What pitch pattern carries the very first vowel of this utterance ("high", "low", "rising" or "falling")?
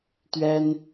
high